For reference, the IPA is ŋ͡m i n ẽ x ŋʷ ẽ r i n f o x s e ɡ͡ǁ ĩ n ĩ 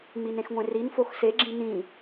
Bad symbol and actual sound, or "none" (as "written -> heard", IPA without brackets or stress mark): none